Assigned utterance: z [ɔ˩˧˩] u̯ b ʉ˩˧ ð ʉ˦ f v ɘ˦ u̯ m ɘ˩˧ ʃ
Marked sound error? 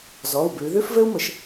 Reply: no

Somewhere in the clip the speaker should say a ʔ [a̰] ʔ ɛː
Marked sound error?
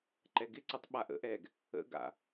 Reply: yes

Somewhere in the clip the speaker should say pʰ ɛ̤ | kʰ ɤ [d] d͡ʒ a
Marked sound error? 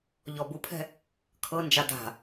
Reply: yes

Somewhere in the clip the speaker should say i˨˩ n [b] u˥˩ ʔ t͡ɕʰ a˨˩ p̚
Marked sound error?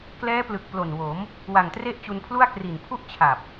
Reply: yes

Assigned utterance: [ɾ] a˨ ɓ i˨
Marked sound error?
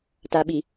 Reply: yes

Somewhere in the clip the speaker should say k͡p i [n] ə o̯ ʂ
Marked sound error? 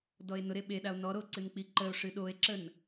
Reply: yes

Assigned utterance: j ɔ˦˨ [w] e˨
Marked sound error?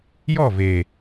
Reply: yes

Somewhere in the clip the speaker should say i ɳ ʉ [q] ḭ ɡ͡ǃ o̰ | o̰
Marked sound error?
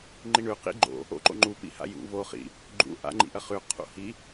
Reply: no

